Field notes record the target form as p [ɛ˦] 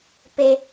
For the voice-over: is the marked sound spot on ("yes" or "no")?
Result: no